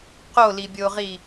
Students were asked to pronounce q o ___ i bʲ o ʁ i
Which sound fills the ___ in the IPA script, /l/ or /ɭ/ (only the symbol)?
l